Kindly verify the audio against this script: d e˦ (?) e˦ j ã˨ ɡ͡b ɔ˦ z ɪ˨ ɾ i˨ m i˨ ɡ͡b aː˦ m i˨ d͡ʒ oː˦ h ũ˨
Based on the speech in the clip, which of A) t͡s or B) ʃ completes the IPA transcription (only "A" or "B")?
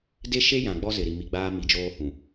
B